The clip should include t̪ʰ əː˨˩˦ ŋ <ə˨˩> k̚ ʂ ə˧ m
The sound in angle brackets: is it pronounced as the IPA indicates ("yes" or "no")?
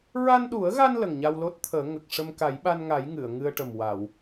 yes